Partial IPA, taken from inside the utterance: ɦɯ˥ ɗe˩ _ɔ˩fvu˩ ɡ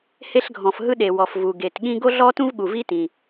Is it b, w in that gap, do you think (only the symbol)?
w